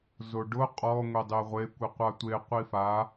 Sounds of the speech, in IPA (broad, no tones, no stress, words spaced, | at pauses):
zoɖʊ qʼɔ ŋʷedˤeʁʷe kʷiqʷatʷe qʷifa